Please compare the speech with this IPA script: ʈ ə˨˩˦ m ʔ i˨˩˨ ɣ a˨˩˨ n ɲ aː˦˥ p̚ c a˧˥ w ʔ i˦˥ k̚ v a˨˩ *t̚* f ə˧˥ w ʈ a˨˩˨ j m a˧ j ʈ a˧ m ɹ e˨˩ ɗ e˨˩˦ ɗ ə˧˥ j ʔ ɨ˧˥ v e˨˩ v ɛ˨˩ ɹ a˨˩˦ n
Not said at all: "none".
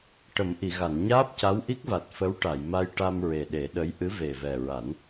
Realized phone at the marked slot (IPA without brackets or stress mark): t̚